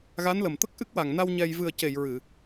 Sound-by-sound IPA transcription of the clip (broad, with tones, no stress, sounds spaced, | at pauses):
ɣ a˧˥ n l ə˨˩ m t̪ ə˦˥ k̚ ʔ ɨ˦˥ k̚ w a˨˩ ŋ n a˧ w ɲ ɛ˧ j v ɨ˨˩ ə̯ c e˨˩˨ j ɹ ɨ˨˩˨